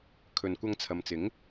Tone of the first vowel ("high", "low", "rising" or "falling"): low